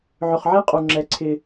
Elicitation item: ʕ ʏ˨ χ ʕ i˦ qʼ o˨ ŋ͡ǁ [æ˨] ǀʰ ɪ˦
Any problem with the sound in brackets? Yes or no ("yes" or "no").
yes